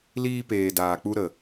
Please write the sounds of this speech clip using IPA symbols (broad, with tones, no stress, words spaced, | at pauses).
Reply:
liː˧ peː˨ daː˨k͡pu˧ɾə˨